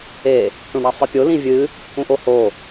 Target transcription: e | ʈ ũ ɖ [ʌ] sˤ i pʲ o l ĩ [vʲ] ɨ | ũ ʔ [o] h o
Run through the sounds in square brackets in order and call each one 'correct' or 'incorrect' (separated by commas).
incorrect, correct, correct